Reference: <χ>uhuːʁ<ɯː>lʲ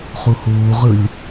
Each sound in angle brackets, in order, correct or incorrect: correct, incorrect

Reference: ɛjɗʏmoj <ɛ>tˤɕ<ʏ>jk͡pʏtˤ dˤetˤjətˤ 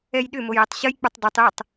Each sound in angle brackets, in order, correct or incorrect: correct, incorrect

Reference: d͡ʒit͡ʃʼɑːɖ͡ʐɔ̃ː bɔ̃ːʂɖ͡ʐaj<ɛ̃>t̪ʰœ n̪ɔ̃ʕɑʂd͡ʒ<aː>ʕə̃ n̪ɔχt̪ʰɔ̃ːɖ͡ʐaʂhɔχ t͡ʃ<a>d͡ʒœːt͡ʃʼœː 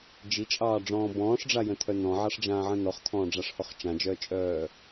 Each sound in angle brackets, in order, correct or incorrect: incorrect, incorrect, incorrect

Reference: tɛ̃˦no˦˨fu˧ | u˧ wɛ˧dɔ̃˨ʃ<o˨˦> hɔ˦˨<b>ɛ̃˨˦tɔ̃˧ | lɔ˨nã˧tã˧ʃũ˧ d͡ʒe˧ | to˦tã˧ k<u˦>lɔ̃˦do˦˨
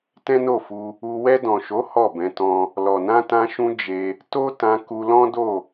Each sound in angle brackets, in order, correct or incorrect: correct, correct, incorrect

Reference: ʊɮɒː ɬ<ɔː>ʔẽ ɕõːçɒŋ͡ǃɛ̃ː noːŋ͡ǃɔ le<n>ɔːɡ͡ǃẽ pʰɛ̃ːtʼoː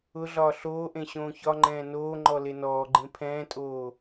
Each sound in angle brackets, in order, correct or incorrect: incorrect, correct

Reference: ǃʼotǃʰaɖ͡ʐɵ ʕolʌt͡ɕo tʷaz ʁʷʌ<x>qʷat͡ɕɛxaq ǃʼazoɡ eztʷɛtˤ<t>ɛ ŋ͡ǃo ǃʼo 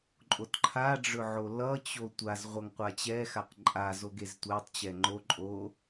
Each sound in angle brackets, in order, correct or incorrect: incorrect, incorrect

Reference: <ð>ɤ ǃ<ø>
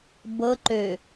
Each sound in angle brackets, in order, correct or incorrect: incorrect, correct

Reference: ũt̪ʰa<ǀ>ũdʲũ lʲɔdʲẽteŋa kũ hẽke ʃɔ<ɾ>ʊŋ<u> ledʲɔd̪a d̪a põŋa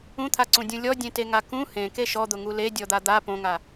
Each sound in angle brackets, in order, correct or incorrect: correct, incorrect, correct

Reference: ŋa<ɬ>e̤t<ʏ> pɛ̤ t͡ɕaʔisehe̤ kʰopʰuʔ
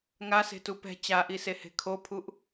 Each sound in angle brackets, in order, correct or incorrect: incorrect, incorrect

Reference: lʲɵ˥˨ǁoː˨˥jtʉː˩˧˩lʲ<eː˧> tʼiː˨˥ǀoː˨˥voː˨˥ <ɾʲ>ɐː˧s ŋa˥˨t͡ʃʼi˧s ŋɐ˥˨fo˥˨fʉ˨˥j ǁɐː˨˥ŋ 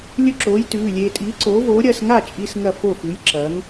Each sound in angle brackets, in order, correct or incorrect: correct, correct

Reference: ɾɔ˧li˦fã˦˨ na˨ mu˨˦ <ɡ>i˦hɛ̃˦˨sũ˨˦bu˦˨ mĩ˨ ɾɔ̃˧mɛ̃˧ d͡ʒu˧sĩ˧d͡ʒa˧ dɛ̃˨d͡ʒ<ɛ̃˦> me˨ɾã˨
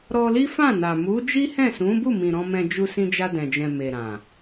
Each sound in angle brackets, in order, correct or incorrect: incorrect, incorrect

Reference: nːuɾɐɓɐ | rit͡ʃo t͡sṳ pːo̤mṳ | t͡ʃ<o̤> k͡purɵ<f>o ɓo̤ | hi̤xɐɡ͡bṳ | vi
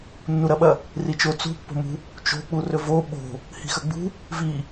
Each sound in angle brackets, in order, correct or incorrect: correct, incorrect

